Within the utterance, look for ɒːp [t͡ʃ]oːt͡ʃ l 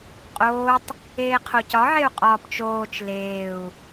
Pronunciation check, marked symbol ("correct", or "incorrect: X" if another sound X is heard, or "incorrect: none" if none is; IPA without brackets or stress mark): correct